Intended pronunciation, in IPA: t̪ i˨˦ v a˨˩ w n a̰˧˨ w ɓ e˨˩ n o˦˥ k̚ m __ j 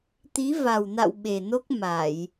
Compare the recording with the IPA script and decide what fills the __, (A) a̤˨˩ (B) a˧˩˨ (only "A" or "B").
B